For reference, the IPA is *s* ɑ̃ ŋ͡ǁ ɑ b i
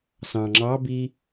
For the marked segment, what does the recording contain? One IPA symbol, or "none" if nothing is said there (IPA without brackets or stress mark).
s